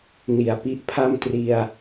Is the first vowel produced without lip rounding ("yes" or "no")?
yes